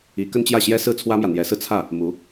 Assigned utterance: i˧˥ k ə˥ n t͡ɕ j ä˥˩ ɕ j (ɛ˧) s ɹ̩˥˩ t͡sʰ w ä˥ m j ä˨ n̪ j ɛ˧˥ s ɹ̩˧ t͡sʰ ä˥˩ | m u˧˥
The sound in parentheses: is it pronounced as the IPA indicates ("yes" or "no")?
no